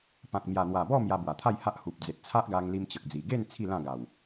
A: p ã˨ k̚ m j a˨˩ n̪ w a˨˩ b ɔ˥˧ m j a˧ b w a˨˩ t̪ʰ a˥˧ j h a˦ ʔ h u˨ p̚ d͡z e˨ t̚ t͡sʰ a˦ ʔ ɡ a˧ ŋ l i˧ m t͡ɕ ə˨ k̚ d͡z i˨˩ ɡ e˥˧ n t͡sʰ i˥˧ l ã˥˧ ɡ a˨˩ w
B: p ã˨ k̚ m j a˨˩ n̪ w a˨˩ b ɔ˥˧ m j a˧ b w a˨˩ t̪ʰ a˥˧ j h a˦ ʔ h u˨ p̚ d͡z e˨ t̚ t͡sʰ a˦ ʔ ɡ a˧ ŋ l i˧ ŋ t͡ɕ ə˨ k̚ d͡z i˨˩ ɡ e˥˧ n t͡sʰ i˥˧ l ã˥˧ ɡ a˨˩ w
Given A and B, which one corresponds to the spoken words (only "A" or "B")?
A